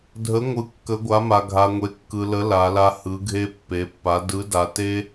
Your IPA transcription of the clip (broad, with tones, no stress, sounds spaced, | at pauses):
dʱ ə˨˦ ŋʷ ɯ˨ kː ə˨˦ ɡʷ a˨˦ m a˨ ɡʱ a˨ ŋʷ e˨ kː ɯ˨ l ə˨˦ l a˨˦ l a˦ h ɯ˨˦ ɡʱ e˦ pː e˨˦ pː a˨˦ d ɯ˨˦ d a˨ t e˦